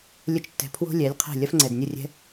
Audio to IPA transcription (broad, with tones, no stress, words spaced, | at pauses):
lʲə˧t͡ʃtːɛ̤˨ pʰwo̤˦lʲɛ˨˦lʲ qʰɛ̤˦˨lʲɐ˦f ŋ͡ǀɛ˨dnʲə˦˨rʲɛ̤˦